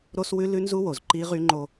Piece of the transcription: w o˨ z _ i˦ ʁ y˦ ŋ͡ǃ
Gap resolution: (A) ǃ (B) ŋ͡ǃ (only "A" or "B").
A